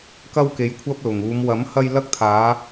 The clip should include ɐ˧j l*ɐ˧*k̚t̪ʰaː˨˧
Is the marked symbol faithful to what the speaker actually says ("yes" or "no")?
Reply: yes